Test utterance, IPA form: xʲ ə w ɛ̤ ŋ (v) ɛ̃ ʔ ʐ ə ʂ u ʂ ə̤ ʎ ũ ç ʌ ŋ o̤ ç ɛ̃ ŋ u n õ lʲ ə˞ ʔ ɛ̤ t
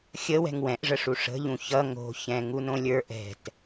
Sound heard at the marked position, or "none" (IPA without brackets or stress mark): w